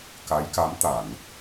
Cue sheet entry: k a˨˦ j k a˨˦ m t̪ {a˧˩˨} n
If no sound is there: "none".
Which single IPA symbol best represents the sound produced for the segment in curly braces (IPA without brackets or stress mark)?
a˧˩˨